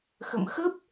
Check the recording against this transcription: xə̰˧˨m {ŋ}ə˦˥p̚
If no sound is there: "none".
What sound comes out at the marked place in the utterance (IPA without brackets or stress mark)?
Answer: x